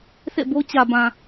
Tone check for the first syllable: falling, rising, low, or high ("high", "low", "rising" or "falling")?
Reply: falling